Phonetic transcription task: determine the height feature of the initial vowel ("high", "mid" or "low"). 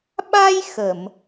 low